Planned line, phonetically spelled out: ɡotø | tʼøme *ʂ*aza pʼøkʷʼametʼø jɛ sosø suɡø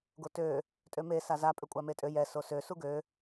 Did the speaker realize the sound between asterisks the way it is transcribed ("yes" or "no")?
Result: no